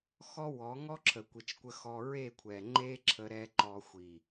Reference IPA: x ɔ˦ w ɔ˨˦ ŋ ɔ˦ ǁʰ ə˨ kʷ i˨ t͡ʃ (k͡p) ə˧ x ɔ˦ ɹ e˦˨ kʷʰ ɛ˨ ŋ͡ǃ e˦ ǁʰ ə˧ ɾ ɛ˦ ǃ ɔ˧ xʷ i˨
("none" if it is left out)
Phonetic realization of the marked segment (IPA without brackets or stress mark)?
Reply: kʷ